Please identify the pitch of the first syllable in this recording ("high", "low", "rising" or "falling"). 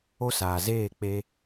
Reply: high